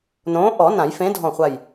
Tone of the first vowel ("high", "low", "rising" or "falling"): rising